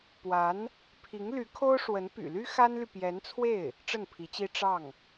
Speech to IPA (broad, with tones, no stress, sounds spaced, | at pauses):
p w a˧˥ n | pʰ i˧˥ ŋ l y˧˥ kʰ o˥ ʊ̯ ʂ w ə˧˥ n p y̰˨˩ l y˥ x a˥ n l y˨ p j ɛ˧˥ n t͡sʰ w e˥˩ ɪ̯ | ʈ͡ʂ ə˥˩ n pʰ i˧˥ t͡ɕ i˥ ʈ͡ʂ ɑ˥˩ ŋ